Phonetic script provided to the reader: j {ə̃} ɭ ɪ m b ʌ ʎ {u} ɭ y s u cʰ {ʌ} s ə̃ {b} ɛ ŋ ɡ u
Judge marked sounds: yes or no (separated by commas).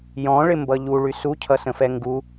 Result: no, yes, yes, no